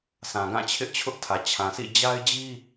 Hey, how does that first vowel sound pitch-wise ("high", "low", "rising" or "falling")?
low